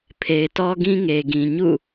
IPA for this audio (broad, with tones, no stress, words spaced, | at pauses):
pʰe˨ɪ̯tɔ˦ɡĩ˦ ŋe˨ɡĩ˨ ɲṵ˦˨